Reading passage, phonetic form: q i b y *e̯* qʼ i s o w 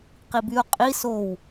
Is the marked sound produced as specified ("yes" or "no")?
no